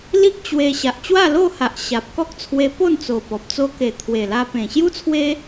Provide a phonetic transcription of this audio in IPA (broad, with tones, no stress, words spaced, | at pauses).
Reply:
li˦k̚ t͡ɕwe˧ ɕa˨ʔt͡ɕwa˥˧lo˥˧ha˨ʔ ɕa˨p̚ kɔ˦k̚t͡sʰwe˧ po˥˧nt͡so˨˩pɔ˨p̚ t͡so˧ke˨˩ t̪ʰwe˨˩la˧ pẽ˨˩ɕju˦t͡sʰwe˦